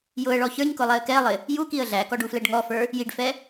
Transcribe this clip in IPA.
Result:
j ʊ ə̯ ɭ ɔ ç ə˞ ɲ k ʊ lˠ ɛ ə̯ k ɛ lˠ ɪ | j u k i ə̯ ɮ æ k ɔ ɖ u f l ɛ ɖ ŋ ɔ f ə˞ | j i ɖ f ɛ

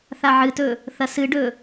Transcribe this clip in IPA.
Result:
θ a ʕ ɨ t ɵ | θ ɐ s ɨ ɖ ɵ

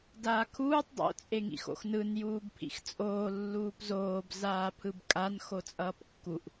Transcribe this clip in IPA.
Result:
d aː kʰ uː tˤ dˤ o̰ t͡sʼ e ŋ ḭ x o̰ x n ɯ n j uː b pʰ ḭ x t͡sʼ oː lː uː p z oː b z aː pʰ ɯ b kʼ a n x o t͡sʼ ʌː p kː u ʔ

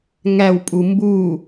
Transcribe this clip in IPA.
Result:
ŋ æ w pʼ u m b u

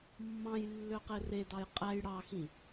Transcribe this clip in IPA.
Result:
mː ɑ̃ j lː ø q e r e d ɑ j qʼ æ j ɽ ɑ x ĩ

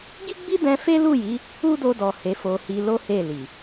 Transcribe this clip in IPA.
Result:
ɡ i˦ ɡ͡b i˦ d ɛ̃˧ f e˦ l u˦˨ j i˨˦ | u˦ d o˧ d ɔ˨ h e˨˦ f o˧ h i˧ l o˦ h e˦˨ l i˨

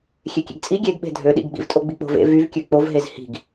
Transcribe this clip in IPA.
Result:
xʲ e kʲ ḛ ɡ t͡sʼ i ɡʲ e ɡ ɓ e̤ dʱ ø ɗ ḭ ɡ ɡ͡b ḭ v tʼ o ɡ͡b i k͡p o̤ v ḛ v y v kʲ ø k͡p o v ɦ e z h i̤ ɡ

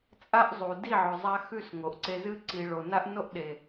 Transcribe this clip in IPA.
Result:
t͡sʼ a˦ ʔ zˤ u˨ d i˦˨ ʕ ɵ˨ zˤ a˧ x ʉ˦˨ s ŋ o˨ ʔ ǀ e˧ z ɨ˧ ǀ i˨ ɭ o˨ n a˦ ʔ n o˦ ʔ ɗ e˨

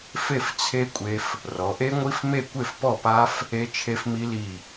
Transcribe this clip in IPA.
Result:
f e˥˨ f t͡sʰ e˦˥ kʷʼ e˦˥ f | r ɔ˩˧ ʔ e˦˥ ŋʷ i˦˥ f m e˥˨ kʷ e˥˨ f p ɔ˥˨ p a˦˥ f | e˦˥ t͡ʃʰ e˦˥ f m i˦˥ l i˥˨

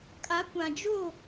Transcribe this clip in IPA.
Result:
kʼ a˨˦ kʷ ã˨ d͡ʒ o˦˨

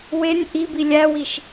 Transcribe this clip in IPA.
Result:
w e nʲ ʔ i b i lʲ æ w i ʃ

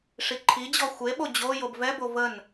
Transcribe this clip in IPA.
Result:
ʂ i ǃʰ i d͡ʑ ɔ xʷ e ɓ o d͡ʑ o j o b v ɛ b o v ə n

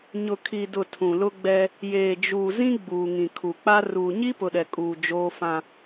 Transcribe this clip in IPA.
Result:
ɲ ʊ˨ kʰ i˨ d ʊ˨ tʰ ũ˨ l ʊ˦ ɡ͡b ɛ˦ | j eː˨ d͡ʒ uː˨ z ĩ˦ ɡ͡b uː˨ ŋ ĩ˨ kʰ u˨ k͡p a˦ r uː˨ ɲ i˦ p ʊ˨ ɗ ɛ˨ kʼ uː˨ d͡ʒ oː˦ f ã˦

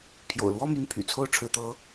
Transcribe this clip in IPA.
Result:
pʰ j o̰˨˩ ʊ̯ l w ɔ˥ m y˧˥ n pʰ y̰˨˩ t͡sʰ o˥˩ ʊ̯ ʈ͡ʂʰ ɻ̩˧˥ t̪ ɤ˧˥

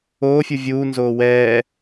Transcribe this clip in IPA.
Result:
oː fʲ u vʲ uː n z oː w ɛː

